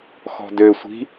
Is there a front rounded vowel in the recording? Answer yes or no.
yes